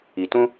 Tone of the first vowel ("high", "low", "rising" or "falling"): low